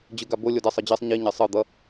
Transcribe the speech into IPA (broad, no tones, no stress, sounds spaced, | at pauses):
d͡ʑ ɯ ɡ a b o lʲ o d ɛ sˤ ɯ d͡ʑ e sˤ ɲ i ɲ ɛ sˤ ɯ d̪ ʌ